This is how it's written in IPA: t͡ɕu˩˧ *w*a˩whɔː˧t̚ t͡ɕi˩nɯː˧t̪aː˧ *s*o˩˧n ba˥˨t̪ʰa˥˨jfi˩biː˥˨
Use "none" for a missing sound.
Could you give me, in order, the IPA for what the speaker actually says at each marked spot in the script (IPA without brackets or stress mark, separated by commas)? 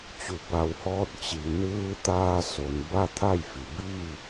b, s